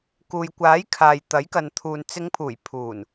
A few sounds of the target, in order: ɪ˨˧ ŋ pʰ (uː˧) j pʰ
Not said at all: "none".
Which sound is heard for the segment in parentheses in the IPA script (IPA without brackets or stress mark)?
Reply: uː˨˩